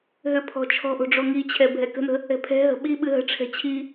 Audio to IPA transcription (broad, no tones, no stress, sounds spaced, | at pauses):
ɦ ø pʰ ɔ̤ t͡ʃʰ ɔ̤ ʔ o̤ ɖ͡ʐ o ŋ i t͡ɕʰ ɛ bʱ ɛ k ə̤ n ə̤ | ɛ̤ pʰ ɛ̤ ɦ ə̤ ɓ i ɓ ɨ ɦ ə̤ ʈ͡ʂʰ ɛ̤ t͡ɕʰ i